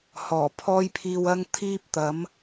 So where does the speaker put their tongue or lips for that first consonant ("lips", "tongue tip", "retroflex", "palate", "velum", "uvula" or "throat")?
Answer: throat